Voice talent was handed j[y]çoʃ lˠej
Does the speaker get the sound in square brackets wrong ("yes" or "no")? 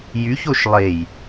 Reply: no